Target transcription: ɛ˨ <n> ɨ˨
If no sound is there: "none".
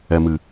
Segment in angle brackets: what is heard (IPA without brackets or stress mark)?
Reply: m